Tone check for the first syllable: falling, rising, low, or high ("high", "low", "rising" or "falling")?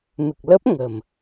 low